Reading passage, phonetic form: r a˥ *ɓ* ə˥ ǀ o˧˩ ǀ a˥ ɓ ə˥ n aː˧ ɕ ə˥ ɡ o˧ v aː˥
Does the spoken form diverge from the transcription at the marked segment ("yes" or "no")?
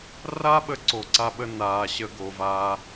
no